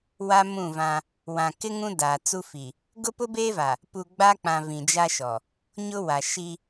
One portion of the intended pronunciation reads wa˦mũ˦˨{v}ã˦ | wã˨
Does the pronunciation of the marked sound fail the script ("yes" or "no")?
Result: no